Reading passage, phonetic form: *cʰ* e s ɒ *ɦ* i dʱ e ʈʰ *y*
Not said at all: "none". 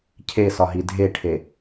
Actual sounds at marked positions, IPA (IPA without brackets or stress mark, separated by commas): cʰ, ɦ, e